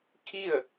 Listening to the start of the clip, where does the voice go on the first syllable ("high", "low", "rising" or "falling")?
falling